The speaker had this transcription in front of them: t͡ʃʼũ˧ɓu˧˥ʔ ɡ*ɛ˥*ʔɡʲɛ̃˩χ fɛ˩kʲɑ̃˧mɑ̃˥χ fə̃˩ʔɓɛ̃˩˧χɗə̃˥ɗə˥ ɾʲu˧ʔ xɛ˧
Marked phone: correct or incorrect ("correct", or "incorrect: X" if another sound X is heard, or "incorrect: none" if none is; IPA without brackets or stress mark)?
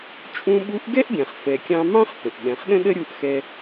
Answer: correct